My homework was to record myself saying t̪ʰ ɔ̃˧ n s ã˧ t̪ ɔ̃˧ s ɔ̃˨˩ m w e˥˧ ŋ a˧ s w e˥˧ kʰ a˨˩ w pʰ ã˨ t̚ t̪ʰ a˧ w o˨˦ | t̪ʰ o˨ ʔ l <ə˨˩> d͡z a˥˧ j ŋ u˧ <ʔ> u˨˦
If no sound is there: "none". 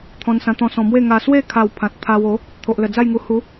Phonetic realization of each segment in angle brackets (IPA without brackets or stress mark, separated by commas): ə˨˩, h